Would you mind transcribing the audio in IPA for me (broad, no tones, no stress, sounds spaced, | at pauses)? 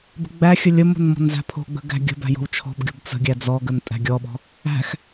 b ə̤ ɡ͡b æ xʲ ə lʲ ə m o̤ n m ɔ̤ n z æ̤ pʰ o̤ ɡ͡b ə̤ ɡ æ̤ ɡʲ ə̤ b æ̤ j o̤ w t͡ʃʰ ɔ̤ b ɡʲ o̤ b t͡s ə̤ ɡʲ æ d͡z ɔ ɡ ə n tʼ æ̤ ɡʲ ɔ ɓ ɔ̤ | æ̤ x